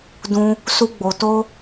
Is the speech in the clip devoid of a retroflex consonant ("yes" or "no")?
yes